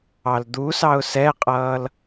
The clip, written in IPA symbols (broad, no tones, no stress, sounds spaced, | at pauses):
ɑ l d̪ u s ɑ ʊ̯ s ɛ qʼ ʌː l